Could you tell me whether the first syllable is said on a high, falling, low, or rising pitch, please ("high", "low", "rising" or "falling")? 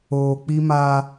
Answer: low